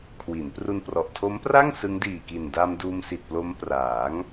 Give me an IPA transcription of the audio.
kʰ w i˩˦ n p r u˧ n p r ɔ˨˩ ʔ tʰ o˦˥ m p r a˥˩ ŋ s ɯ˦˥ ŋ d iː˨˩ k i˨˩ n d a˧ m d uː˧ m s i˨˩ t̚ p l o˦˥ m p r aː˩˦ ŋ

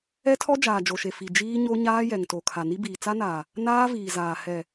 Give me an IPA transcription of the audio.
ɛ˦ tʰ ɔ˦ d͡ʒ aː˨ d͡ʒ o˨ ʃ e˨ f i˨ d͡ʒ iː˦ ɲ o˦ ɲ aː˦ j ɛ˨ ŋ t o˨ kʰ a˨ n i˦ b iː˨ t͡s a˦ n aː˨ | n aː˦ v iː˨ z aː˨ h ɛ˨

